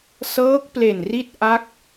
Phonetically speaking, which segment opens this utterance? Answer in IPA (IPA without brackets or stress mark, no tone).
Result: s